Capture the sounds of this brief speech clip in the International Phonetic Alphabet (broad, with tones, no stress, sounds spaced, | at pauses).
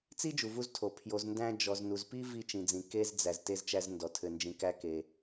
t͡s i˥ d͡ʒ u˩ v u˧ z tʰ o˩ pʰ j o˩ z n d æ̃˧ d͡ʒ ɔ˩ z n u˩ z p i˥ v i˧ t͡ʃ ĩ˩ d͡z ĩ˩ k e˧ z d͡z æ˩ z t e˧ z t͡ʃ æ˧ z n d ɔ˩ tʰ ɘ˩ n d͡ʒ ĩ˩ k æ˧ k e˩